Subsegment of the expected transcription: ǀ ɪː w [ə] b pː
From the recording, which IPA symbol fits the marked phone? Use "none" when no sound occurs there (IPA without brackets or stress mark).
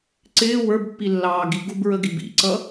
ə˞